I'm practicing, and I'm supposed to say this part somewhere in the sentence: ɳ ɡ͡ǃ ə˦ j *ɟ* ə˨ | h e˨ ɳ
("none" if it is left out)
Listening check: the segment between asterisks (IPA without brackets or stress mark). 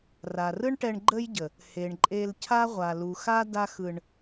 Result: ɟ